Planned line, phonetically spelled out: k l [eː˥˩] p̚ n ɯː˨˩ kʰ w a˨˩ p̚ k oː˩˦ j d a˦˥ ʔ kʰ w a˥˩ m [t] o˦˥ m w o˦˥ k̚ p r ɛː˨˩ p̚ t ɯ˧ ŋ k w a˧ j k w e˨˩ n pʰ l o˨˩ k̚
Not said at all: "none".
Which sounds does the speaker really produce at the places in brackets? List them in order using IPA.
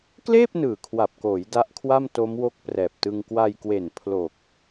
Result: eː˥˩, t

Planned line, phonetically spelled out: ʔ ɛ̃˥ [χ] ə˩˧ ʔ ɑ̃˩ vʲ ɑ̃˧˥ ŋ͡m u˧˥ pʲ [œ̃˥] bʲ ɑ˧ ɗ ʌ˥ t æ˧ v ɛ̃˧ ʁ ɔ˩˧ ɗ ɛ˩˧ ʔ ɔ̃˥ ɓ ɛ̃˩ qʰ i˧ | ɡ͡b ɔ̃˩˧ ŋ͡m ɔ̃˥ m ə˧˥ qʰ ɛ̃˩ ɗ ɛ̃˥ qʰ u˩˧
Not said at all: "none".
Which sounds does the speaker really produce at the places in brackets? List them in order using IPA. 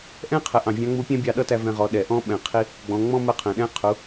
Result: qʰ, æ̃˥

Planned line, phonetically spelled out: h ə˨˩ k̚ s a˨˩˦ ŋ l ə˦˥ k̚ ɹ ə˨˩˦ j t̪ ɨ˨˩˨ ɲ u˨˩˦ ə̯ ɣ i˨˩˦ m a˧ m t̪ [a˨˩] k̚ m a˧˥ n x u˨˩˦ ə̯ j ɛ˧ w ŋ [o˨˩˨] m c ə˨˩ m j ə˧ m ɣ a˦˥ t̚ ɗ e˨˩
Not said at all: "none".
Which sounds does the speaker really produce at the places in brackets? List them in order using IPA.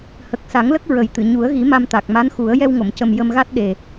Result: a˨˩, o˨˩˨

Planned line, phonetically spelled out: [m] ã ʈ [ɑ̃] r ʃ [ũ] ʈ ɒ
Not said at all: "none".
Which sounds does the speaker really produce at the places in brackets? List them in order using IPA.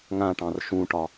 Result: ŋ, ɑ̃, ũ

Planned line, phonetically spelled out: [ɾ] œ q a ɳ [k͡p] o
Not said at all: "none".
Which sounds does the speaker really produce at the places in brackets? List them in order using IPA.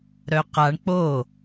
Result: ɾ, k͡p

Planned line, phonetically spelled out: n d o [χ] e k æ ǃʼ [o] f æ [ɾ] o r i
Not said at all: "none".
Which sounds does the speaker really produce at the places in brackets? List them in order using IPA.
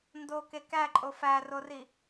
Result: k, o, r

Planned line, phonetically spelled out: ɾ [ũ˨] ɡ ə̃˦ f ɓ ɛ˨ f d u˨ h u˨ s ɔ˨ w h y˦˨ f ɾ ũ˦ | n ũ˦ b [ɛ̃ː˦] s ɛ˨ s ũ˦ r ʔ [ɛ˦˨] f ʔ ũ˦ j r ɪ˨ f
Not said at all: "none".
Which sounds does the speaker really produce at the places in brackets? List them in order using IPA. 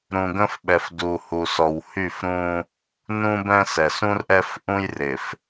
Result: ũ˨, ɛ̃˦, ɛ˦

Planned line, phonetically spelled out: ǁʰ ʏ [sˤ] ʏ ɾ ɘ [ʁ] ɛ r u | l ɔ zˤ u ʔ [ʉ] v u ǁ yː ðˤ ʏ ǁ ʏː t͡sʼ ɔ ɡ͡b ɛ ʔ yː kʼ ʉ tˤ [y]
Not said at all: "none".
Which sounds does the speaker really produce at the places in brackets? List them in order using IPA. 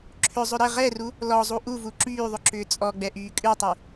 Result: zˤ, ʁ, u, y

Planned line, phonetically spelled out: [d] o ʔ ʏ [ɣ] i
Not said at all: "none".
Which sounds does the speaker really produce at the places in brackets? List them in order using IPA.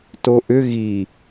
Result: t, ɣ

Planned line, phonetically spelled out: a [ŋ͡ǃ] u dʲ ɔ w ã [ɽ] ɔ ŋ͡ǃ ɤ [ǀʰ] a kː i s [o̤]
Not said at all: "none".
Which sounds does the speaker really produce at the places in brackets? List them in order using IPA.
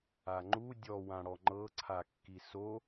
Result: ŋ͡ǃ, ɽ, ǀʰ, o

